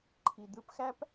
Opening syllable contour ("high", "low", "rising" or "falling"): low